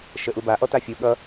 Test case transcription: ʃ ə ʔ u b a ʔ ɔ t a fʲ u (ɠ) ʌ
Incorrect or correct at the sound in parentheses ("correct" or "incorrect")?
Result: correct